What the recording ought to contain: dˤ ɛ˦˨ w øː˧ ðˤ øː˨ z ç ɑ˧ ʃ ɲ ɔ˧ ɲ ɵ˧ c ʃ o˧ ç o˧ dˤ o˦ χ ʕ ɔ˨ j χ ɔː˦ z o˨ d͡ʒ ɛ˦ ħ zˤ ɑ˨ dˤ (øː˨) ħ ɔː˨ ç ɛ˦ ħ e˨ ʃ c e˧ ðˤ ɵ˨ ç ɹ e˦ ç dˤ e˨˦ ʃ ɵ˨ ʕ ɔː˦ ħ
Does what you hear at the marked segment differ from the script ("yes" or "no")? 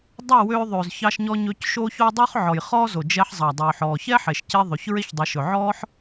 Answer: no